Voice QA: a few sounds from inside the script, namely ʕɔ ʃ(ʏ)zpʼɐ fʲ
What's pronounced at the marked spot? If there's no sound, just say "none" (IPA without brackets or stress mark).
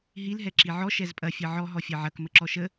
ɛ